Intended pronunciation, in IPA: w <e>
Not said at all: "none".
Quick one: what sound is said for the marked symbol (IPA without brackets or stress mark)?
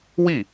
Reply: i